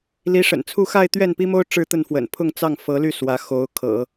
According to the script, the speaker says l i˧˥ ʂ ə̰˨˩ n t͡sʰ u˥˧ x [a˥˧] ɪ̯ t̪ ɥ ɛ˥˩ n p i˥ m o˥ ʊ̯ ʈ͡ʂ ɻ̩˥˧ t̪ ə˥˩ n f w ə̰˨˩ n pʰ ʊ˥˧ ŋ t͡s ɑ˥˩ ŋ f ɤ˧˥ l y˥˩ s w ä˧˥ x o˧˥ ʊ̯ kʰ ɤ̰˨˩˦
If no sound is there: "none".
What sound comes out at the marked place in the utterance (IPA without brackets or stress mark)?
a˥˧